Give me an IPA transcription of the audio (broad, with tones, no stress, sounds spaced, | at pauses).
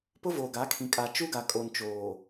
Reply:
p ʊ˦ v oː˨ ɡ a˨˦ kʰ ĩ˨ kʼ a˨ t͡ʃ u˦ ɡ a˨ kʼ o˨ n t͡ʃ oː˨